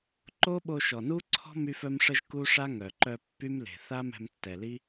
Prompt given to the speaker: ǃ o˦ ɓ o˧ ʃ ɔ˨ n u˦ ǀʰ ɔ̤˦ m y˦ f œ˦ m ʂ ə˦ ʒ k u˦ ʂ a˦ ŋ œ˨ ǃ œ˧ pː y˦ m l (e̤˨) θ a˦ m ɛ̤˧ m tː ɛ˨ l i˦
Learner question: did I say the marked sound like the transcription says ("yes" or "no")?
yes